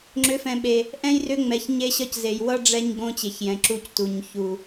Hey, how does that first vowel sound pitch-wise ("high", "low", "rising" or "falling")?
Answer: rising